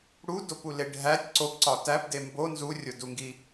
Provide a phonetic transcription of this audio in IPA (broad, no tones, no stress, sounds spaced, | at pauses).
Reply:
ɽ u d o p u l e ɖʱ æ tʲ ǀ o p ǀ ɒ t æ p d e m b o n z u rʲ o d u ŋ ɡ i